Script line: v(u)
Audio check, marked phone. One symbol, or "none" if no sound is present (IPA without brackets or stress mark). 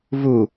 u